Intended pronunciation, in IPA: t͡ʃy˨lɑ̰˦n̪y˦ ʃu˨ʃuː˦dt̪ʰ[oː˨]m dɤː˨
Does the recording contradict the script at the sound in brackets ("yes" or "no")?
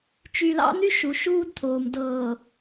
no